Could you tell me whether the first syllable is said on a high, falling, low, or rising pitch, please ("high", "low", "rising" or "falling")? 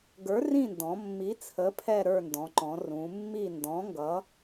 rising